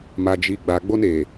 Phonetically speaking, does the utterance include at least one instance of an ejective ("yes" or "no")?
no